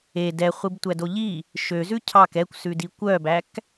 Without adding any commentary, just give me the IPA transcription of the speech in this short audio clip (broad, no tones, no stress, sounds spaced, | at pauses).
e d ɛ χʷ i b tʷ æ d o ʎ i | ʃ ø z ʉ cʰ ɑ k ɛ kʷ s ʉ d i kʷ œ b æ k